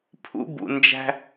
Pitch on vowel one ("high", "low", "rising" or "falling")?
high